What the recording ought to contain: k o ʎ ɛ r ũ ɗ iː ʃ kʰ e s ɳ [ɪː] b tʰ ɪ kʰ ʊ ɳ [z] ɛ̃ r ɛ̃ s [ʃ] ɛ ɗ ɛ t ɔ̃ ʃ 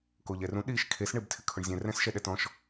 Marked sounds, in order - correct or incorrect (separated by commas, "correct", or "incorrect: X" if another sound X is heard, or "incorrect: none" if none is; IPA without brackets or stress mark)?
correct, incorrect: zʲ, correct